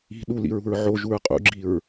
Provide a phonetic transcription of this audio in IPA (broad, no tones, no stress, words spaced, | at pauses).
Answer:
i̤ ɗulḭɹṳɹ ʕoʒuɹ qʼṵɡ͡ǁiɹ